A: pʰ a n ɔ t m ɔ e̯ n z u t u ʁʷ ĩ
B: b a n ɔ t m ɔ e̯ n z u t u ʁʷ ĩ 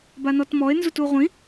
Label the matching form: B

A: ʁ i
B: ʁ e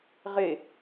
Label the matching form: B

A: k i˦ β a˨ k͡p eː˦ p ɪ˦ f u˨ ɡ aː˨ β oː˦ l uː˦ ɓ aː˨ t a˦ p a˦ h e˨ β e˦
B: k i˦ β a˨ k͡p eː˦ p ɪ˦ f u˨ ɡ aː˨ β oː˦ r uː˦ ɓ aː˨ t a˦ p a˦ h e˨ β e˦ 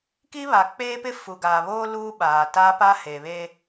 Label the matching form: A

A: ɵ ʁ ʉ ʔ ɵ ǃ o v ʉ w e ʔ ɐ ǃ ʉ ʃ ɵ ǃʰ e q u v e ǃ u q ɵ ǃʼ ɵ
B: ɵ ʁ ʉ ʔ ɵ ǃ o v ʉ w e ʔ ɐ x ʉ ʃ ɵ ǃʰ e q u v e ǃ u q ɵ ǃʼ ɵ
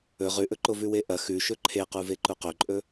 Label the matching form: B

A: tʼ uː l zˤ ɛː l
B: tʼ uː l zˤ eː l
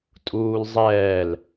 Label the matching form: A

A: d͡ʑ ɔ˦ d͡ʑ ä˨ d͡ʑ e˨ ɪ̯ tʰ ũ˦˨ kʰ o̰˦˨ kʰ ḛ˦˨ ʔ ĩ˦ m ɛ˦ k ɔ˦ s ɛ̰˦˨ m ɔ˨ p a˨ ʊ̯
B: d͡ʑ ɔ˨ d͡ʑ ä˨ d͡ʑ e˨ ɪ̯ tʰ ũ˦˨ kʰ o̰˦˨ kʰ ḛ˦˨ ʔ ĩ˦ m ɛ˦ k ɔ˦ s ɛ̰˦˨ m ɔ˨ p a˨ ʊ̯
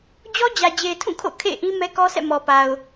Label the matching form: A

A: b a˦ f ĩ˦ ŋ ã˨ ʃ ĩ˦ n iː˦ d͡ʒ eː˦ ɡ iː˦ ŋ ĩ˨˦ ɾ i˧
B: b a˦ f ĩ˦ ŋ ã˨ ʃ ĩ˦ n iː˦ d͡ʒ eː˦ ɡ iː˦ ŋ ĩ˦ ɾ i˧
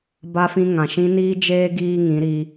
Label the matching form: A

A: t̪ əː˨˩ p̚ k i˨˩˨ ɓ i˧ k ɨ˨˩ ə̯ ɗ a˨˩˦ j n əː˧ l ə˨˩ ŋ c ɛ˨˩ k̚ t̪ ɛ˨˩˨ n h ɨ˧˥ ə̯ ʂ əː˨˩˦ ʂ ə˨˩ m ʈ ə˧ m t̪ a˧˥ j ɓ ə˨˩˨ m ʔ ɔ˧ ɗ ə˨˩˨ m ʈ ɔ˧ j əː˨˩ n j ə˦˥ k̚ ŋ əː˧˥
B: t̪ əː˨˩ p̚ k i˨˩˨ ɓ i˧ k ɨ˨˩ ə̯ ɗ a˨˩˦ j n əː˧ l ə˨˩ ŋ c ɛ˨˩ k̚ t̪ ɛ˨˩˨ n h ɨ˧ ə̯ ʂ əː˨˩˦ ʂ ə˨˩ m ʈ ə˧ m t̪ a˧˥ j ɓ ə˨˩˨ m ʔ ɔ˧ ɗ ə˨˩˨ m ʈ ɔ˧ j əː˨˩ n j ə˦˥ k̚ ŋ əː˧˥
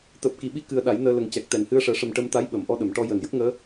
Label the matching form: A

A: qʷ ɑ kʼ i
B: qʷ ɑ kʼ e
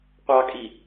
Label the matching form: A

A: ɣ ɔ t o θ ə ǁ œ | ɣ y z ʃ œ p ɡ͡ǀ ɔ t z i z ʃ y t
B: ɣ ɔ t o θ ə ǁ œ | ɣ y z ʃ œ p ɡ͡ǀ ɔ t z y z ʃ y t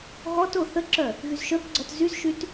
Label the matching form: B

